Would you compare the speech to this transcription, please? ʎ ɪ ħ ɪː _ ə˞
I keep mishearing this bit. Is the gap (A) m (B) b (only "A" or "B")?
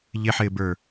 B